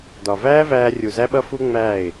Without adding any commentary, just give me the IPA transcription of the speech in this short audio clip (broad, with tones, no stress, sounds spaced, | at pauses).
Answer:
d ɒ˨ v æː˦ v æː˧ rʲ u˨ z æ˦ ɓ ʌ˦ f u˦ ŋ͡m æː˦˨ ɪ̯